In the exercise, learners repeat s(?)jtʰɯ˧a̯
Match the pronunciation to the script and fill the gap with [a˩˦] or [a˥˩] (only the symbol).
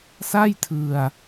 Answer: a˥˩